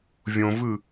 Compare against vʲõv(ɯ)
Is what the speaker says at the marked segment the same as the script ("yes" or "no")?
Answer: yes